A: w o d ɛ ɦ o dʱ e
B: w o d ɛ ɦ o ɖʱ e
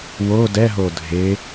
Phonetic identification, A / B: A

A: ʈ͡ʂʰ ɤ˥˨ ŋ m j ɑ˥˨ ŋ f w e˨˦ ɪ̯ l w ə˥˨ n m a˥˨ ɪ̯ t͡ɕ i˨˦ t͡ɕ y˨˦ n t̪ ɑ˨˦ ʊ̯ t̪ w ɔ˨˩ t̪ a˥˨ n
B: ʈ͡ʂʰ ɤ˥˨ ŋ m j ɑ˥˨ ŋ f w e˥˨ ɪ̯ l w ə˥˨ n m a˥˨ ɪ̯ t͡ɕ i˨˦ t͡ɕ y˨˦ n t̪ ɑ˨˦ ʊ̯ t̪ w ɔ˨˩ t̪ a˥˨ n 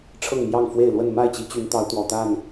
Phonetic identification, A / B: B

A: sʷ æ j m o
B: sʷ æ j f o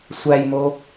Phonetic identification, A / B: A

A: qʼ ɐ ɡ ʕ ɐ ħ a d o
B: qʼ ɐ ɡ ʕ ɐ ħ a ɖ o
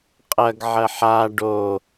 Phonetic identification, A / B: B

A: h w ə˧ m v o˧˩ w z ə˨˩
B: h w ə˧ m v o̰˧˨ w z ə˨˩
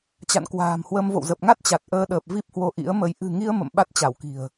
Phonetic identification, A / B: B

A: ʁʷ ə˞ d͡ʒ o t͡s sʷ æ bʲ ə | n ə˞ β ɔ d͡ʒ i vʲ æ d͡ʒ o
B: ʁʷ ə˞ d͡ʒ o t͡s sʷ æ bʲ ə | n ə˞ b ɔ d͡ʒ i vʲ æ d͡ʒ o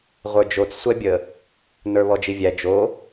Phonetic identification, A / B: A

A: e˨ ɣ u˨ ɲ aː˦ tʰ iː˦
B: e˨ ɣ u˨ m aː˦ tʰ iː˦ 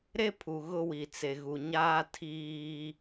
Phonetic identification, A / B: A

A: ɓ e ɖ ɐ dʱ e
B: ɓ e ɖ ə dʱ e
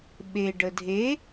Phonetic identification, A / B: B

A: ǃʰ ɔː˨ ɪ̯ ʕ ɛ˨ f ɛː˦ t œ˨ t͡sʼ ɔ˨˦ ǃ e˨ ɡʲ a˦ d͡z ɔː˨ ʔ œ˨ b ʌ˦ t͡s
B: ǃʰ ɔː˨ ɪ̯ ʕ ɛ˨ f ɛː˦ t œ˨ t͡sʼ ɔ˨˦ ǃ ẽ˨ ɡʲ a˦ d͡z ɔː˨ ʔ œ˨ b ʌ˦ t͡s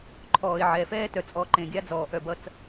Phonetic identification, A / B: B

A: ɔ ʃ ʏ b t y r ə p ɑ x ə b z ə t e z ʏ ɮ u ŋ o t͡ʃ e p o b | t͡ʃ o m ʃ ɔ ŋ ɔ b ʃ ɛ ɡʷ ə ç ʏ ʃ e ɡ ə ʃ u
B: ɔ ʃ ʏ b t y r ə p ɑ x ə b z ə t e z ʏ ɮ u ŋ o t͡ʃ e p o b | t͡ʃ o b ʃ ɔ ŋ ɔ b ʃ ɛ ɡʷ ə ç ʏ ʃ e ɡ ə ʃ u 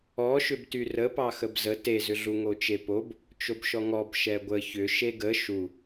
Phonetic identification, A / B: B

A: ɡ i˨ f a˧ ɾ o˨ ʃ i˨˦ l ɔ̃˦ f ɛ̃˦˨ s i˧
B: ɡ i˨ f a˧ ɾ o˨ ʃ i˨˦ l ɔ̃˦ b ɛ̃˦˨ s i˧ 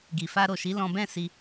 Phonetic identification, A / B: B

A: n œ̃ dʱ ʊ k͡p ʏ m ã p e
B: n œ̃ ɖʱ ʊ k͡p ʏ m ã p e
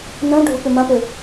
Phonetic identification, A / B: B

